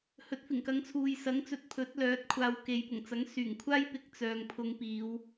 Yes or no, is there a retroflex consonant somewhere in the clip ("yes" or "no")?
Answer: no